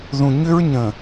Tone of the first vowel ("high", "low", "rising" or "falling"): low